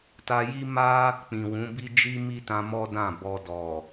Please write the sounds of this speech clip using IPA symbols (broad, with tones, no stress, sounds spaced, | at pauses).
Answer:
t a˧ j i˦ m a˦ | k͡p ĩ˨ w ũ˨˦ b i˦ d͡ʒ i˦ m i˦ t ã˧ m ɔ˦ d ã˦˨ b ɔ˧ d ɔ˨